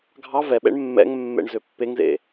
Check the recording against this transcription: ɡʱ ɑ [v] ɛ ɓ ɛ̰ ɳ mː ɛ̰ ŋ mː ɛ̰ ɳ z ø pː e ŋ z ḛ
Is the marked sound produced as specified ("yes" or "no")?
yes